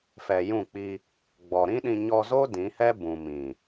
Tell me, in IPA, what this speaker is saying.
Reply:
f ɛ˨ j ũ˦˨ k͡p i˧ | ɡ͡b ɔ˨ ɾ ĩ˦ ɗ ĩ˧ ɲ ɔ˧ z o˦ d ĩ˨˦ h ɛ˦ b ũ˨ m ĩ˨

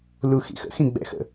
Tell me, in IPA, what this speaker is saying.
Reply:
l u x ḭ x ə̰ x ĩ ɡ͡b ɛ̰ x ə̰

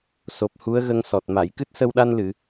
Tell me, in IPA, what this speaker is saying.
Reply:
s o˨˩ p̚ h u˧˥ ə̯ ɣ ə˧ ŋ s ɔ˨˩ t̚ m a˨˩˨ j k ɨ˦˥ t̚ s ə˧ w ɗ a˧ n l ɨ˨˩˨

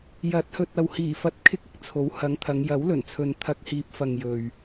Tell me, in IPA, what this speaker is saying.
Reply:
j ɐ˨˥ t̚ h ɵ˨ t̚ ɐ˨ w h iː˨˩ f ɐ˧ t̚ kʰ ɪ˥ k̚ ɪ˨ k̚ t͡sʰ o˨˥ w h ɐ˨˥ ŋ t̪ʰ ɐ˨˧ ŋ j ɐ˨˥ w l ɵ˨˩ n t͡sʰ ɵ˨ n t̪ʰ ɐ˧ k̚ h iː˨ p̚ f ɐ˨ ŋ j ɵ˨ ɥ

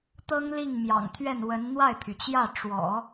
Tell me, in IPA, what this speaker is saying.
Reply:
t̪ ɤ˥ ŋ l i˥˩ ŋ m j ɑ̰˨˩ ŋ t̪ʰ ɥ ɛ˥˩ n w ə˧˥ n n̪ w a˥˩ ɪ̯ t̪ʰ y˩ t͡ɕ j ä˥˩ ʈ͡ʂ w ɔ̰˨˩˦

